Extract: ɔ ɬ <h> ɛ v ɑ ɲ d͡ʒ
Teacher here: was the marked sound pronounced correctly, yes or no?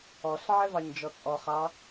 no